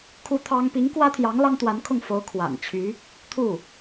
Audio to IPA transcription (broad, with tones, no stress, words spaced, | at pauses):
kʰu˧˥ t̪ʰɑ˥ŋ pi˧˥ŋkwä˥t̪ʰjɑ˧˥ŋ lɑ˥ŋt̪wa˧˥nkʰʊ˥˩ŋfo˧˥ʊ̯ kʰwa̰˨˩n t͡ɕʰy˧˥ | t̪ʰu˥˩